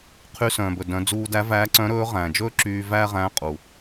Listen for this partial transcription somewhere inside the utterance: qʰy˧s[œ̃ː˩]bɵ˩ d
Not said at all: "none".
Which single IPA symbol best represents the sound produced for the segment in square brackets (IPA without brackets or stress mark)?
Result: œ̃ː˩